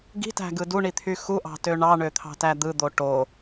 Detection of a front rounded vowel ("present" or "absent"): present